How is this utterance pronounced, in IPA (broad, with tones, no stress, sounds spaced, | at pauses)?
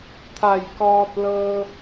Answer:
t̪ʰ a˧˩ j k ɔː˧ t̚ l ɤː˧